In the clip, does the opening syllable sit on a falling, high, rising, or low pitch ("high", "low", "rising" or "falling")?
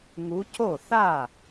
rising